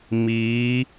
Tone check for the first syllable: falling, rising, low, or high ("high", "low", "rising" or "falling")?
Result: rising